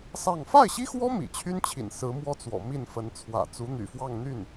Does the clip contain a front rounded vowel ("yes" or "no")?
yes